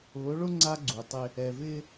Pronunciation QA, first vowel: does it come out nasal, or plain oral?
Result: oral